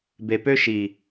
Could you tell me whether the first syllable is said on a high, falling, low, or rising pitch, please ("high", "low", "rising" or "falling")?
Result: low